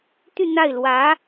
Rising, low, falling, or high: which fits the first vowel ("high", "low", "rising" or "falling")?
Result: falling